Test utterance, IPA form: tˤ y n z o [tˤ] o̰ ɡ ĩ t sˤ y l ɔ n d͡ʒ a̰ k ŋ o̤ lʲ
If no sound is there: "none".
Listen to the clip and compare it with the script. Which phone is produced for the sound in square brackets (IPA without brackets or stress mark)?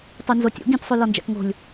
tʲ